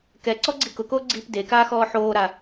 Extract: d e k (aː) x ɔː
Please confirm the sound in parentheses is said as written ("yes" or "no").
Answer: yes